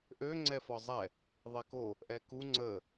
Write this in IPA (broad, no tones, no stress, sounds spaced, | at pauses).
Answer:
ʔ ø ŋ͡ǀ ɛ f ɒ zˤ ɛ | ðˤ ɛ k o | ʔ ɛ k u ŋ͡ǀ ə